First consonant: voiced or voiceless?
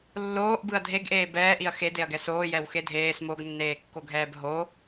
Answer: voiced